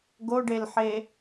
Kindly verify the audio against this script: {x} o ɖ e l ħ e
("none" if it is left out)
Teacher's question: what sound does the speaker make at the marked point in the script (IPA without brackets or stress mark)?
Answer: ɡ